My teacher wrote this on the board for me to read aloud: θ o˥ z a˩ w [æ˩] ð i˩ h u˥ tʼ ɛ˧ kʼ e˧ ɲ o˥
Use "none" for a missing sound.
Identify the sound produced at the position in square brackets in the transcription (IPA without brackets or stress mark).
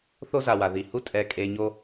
a˩